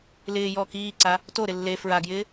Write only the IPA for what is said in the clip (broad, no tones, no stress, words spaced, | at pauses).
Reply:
lɪː jɔːkiːǀa | toɾɪ lːe fɹaɡjɪː